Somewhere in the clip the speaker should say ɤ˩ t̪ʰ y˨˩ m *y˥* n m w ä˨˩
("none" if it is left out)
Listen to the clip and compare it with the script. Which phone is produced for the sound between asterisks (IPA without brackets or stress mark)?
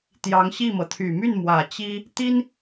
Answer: y˥˩